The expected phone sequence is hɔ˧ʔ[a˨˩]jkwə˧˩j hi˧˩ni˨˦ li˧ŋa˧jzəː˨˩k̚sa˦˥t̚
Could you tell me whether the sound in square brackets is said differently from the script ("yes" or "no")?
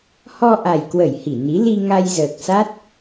no